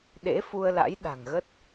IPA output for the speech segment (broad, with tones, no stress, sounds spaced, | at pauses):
ɗ ḛ˧˥ f u˧ ə̯ l a̰˧˥ j ɗ a̤˨˩ ŋ ɣ ə˦˥ t̚